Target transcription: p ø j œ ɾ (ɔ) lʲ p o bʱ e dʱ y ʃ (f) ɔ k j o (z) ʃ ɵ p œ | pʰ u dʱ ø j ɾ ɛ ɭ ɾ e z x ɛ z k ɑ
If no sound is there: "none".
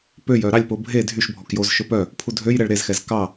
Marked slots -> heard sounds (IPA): ɑ, bʱ, z

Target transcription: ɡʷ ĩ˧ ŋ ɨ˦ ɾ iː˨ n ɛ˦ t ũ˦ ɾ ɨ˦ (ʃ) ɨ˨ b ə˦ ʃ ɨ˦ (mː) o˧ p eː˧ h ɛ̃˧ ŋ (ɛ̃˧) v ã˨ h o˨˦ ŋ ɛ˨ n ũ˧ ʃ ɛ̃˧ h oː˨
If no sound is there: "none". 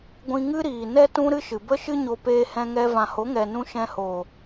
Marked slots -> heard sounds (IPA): ʃ, ɲ, ɛ˧

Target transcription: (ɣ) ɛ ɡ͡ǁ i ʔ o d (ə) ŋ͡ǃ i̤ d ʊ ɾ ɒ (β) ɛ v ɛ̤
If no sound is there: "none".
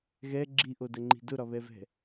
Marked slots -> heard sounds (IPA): ɣ, ə, β

